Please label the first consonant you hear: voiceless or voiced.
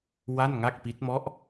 voiced